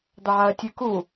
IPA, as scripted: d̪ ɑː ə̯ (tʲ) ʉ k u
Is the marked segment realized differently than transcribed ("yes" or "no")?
no